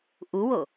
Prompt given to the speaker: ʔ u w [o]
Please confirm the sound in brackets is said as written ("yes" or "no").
yes